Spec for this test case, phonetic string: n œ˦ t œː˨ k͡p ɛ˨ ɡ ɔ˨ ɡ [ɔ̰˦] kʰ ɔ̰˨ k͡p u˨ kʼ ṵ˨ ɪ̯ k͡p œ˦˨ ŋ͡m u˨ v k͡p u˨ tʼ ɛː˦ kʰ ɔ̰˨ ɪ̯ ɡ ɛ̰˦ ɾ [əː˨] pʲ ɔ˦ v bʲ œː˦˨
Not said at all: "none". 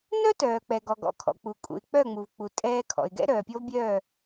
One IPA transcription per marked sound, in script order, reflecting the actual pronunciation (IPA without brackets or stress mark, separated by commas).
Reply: ɔ̰˨, œː˨